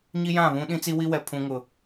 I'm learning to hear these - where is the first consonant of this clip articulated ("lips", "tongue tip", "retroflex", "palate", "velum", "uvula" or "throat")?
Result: palate